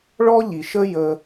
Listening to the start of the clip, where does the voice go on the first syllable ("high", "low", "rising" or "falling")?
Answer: high